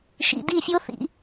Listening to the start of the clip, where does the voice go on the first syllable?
low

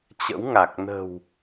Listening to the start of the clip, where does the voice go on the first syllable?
rising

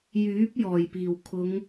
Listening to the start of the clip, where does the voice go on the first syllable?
rising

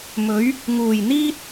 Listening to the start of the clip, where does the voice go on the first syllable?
rising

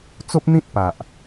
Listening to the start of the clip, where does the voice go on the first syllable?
high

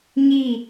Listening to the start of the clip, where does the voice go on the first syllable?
falling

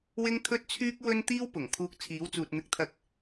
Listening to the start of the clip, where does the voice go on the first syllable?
high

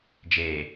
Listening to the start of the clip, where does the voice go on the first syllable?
low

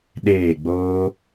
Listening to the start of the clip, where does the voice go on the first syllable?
falling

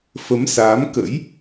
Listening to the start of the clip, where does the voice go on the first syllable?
rising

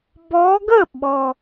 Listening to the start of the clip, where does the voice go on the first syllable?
rising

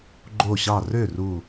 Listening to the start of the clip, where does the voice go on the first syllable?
falling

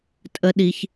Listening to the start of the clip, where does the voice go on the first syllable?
high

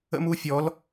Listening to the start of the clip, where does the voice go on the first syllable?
high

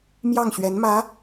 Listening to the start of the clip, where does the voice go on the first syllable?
falling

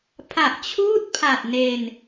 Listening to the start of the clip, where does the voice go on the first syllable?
low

